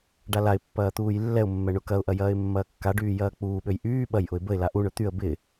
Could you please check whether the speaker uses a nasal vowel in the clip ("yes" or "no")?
no